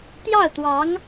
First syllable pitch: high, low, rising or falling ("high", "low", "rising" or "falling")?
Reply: falling